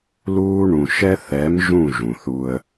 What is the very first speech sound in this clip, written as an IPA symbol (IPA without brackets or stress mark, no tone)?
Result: l